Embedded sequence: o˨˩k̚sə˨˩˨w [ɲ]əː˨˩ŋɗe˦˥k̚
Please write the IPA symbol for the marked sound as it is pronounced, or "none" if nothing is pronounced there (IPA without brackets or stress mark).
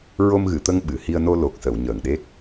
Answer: ɲ